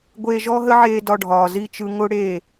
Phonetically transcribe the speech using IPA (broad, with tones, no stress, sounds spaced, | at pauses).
ɡʷ eː˧ ʒ ɔ˦ ɦ ə˦ ʕ eː˧ d ɒ˧ ɖʱ ɒː˨ z i˦˨ t͡ʃ ɯ˧ ŋ ʊ˦ ɽ e˦˨